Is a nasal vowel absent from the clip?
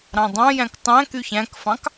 no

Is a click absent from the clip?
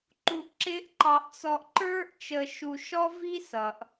no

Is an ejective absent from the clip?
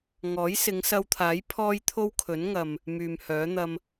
yes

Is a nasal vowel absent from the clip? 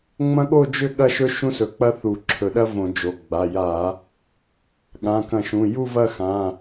no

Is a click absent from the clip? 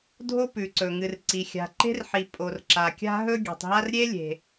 no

